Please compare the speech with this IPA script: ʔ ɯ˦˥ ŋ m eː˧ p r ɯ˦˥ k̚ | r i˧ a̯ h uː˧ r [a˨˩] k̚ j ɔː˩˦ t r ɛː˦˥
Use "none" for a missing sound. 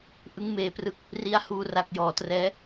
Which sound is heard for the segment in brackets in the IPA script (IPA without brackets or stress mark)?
a˨˩